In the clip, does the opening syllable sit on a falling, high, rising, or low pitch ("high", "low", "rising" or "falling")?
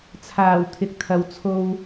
low